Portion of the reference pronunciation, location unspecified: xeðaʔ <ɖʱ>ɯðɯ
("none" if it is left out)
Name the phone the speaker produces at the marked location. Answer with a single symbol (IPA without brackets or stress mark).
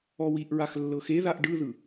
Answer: ɖ